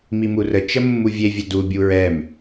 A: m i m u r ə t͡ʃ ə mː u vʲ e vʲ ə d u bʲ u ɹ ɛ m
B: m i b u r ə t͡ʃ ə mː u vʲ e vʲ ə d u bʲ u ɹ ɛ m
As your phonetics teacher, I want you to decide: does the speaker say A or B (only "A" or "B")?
A